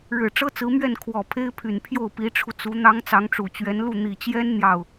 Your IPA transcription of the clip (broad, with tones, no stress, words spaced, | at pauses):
ɻɻ̩˨˩ʈ͡ʂɤ˥t͡sɹ̩˧˥mɥɛ˥˩n kʰwɔ˨˩ pʰe˥ɪ̯pʰy˨˩npʰjo˥˩ʊ̯ pi˧˥ʈ͡ʂʰu˧t͡su˧˥ n̪ɑ˥ŋ t͡sɑ˧˥ŋʈ͡ʂu˨˩t͡ɕɥɛ˧˥nlu˥˩ n̪i˨˩t͡ɕjɛ˥n n̪jɑ˥˩ʊ̯